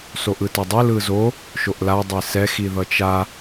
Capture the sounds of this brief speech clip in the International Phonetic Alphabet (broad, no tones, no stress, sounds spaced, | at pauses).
s o ʔ ɯ t ɛ dˤ ɯ l ɯ z o | ʃ o ʔ l a dˤ e s ɛ x i ð ʌ t͡ʃ a